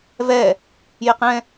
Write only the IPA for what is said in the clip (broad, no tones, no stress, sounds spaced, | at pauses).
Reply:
v ɛ | j ɪ q ɛ̃